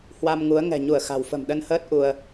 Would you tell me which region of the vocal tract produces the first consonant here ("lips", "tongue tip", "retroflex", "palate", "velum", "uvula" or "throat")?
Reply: throat